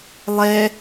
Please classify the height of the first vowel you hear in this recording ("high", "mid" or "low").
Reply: mid